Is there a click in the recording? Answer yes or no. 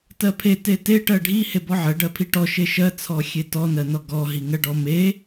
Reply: no